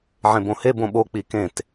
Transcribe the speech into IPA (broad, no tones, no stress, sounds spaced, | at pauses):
ʕ ẽ b õ h e b õ ɓ o k͡p i k ẽ t